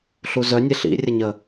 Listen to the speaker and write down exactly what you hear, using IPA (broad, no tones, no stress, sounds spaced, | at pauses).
ɬ u z œ nʲ e ɬ ḭ rʲ ə ɲ ə